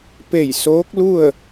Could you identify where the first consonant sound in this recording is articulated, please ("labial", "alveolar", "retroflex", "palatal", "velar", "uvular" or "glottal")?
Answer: labial